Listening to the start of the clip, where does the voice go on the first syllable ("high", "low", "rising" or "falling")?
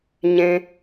low